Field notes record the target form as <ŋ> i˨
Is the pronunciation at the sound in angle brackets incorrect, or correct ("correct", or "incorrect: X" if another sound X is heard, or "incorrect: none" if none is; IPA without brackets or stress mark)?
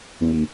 correct